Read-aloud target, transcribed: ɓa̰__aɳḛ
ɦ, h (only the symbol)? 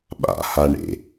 h